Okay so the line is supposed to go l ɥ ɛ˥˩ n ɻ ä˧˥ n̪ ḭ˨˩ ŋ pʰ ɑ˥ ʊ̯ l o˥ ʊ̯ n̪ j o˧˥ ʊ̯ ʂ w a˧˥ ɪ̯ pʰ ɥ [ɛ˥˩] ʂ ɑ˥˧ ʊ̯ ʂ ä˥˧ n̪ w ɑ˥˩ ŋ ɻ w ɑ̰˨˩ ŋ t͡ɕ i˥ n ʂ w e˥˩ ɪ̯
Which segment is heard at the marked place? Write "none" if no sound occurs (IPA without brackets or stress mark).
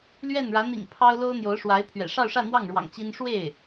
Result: ɛ̰˨˩